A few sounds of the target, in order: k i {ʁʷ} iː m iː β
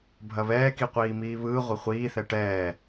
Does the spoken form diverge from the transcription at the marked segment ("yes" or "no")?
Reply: yes